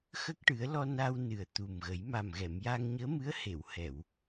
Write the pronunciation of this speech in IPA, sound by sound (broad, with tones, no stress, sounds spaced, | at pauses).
x ə˦˥ k̚ ʈ ɨ˨˩˦ ə̯ l ɔ˧ n a˧ w n ɨ˨˩ ə̯ t̪ u˨˩ m ɣ ə˨˩˦ j m a˨˩ m ɣ ɛ˨˩˨ m j a˧ ŋ ɲ əː˧˥ m ɨ˧˥ ə̯ h e˨˩˨ w h ɛ˨˩˨ w